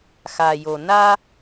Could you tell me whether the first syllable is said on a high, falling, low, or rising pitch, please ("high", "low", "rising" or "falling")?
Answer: low